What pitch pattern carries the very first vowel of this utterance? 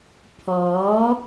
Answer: rising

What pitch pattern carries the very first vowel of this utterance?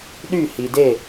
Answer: falling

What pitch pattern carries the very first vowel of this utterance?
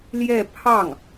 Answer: falling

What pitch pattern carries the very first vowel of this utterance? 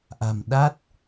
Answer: low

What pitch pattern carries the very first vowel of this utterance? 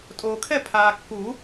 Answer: low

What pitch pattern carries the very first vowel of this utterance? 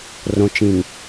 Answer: low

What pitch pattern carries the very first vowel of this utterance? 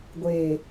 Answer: low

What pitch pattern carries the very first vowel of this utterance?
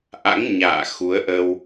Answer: rising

